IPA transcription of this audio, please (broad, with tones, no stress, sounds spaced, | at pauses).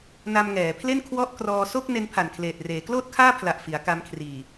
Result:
n a˧ m ŋ ɛː˩˦ pʰ l e˥˩ n kʰ w ɔ˥˩ ʔ k r ɔː˧ s o˥˩ k̚ n e˦˥ n pʰ a˨˩ n kʰ l eː˨˩ t̚ r eː˩˦ k l oː˥˩ t̚ kʰ aː˥˩ pʰ l a˨˩ ʔ f i˩˦ a̯ k a˧ m kʰ r iː˨˩